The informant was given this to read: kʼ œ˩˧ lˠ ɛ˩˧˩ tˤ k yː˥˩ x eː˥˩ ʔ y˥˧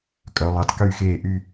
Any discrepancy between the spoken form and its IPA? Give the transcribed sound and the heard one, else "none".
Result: none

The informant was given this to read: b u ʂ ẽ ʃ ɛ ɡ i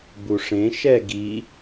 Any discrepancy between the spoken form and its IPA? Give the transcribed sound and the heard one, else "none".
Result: none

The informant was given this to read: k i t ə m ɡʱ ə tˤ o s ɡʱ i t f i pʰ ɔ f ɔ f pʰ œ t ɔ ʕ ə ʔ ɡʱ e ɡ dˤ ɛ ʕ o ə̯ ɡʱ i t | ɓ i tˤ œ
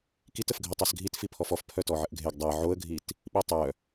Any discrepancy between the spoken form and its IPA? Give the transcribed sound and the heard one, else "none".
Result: m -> f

